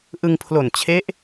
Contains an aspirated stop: yes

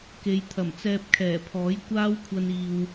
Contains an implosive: no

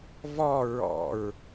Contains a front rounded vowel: no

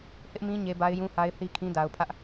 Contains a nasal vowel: yes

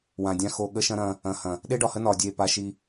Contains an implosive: yes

